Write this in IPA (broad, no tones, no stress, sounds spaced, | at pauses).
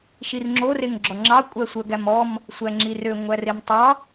ʃ i r ŋ͡ǁ o r e ŋ ɡ͡ǁ ɔ ŋ͡ǁ ɑ kʷʼ æ sʷ œ ɡ æ m ɔ m | sʷ æ ŋ͡ǁ i r ø ŋʷ æ r e m tˤ ɑ